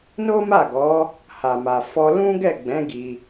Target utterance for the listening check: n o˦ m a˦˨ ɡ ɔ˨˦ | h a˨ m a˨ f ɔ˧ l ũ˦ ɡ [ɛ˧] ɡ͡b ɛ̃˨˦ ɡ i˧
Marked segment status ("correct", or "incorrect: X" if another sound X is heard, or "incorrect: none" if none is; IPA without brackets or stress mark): incorrect: ɛ˦˨